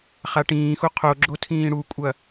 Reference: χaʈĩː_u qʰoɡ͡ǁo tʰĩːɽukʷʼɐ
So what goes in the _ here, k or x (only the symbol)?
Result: x